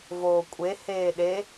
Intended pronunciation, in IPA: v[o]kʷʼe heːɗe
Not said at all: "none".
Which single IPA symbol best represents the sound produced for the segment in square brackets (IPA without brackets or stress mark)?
oː